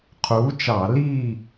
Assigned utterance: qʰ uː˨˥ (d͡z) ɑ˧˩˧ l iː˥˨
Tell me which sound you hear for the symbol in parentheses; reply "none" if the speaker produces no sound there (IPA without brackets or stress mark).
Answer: t͡ʃ